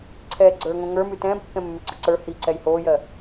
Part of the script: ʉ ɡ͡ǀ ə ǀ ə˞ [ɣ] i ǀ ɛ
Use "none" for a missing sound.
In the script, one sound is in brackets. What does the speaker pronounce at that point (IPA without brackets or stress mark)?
h